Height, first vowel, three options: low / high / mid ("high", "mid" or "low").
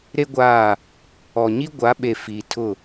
mid